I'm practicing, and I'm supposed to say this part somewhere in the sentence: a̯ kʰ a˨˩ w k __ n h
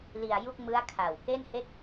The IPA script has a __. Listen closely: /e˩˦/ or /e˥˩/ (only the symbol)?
e˥˩